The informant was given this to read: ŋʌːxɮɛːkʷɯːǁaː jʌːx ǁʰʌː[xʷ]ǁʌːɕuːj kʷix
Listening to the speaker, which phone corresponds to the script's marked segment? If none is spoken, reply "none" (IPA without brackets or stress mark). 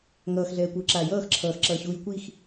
x